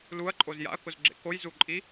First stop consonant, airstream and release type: click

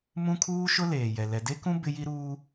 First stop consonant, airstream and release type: aspirated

